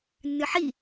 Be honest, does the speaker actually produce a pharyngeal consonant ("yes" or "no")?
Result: yes